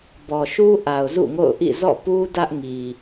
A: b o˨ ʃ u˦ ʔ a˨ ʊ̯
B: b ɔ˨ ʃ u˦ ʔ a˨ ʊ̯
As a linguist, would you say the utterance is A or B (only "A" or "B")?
B